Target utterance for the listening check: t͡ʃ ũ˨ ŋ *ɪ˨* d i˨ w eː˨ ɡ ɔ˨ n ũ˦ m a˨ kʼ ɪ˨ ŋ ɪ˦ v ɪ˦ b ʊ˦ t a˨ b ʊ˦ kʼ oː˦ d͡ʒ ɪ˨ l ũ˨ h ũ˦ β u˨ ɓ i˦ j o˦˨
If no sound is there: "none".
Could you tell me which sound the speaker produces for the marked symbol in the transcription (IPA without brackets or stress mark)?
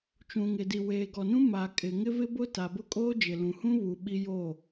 ɪ˨